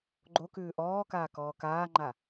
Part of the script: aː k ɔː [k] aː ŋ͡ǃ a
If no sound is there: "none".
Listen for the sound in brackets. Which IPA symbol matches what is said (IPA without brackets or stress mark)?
k